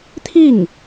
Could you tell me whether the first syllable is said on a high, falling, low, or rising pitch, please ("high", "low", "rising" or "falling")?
falling